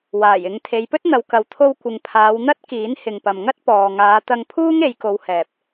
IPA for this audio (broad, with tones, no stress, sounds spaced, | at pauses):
w aː˨˩ j ɪ˨˧ ŋ t̪ʰ e˨˧ j p ɵ˥ t̚ n̪ ɐ˨˧ w k ɐ˨˧ w t̪ʰ o˧ w kʷ ɪ˨ ŋ pʰ aː˨˧ w n̪ ɐ˥ t̚ k iː˨˥ n h ɪ˨ ŋ p ɐ˨ m ŋ ɐ˥ t̚ p ɔː˨ ŋ aː˨˧ t̪ ɐ˧ ŋ pʰ uː˥ ŋ e˨˧ j k o˨˧ w h ɛː˨ p̚